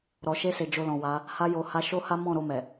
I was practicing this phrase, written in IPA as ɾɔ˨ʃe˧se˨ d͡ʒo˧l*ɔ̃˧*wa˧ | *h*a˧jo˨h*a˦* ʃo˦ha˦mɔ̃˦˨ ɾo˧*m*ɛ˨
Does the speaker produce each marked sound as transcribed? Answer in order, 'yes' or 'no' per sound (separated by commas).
no, yes, no, yes